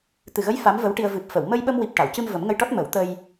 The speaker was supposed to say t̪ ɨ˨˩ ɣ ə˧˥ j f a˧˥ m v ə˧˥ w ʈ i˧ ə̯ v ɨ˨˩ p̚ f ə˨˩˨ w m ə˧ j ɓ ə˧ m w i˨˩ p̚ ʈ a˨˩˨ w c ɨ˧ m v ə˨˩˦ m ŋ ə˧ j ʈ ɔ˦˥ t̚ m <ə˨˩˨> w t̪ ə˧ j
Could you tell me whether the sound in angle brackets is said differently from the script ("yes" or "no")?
yes